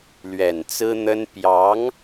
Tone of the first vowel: low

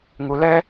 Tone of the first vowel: low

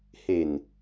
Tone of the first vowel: low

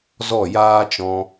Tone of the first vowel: falling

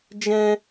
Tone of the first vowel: high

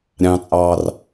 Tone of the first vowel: high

